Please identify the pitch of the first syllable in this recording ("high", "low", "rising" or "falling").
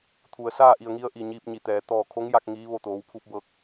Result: low